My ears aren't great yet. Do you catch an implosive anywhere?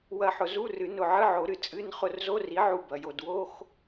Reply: no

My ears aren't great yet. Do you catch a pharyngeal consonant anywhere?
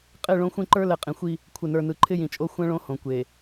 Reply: no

